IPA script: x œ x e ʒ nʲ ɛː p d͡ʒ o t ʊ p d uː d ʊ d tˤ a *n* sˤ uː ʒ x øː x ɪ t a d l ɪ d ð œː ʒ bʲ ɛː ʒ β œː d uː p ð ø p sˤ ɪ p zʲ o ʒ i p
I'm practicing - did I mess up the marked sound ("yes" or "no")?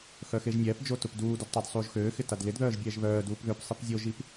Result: yes